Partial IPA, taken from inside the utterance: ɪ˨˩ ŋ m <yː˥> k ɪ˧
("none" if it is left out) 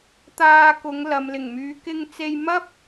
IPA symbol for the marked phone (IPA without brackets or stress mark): yː˨˧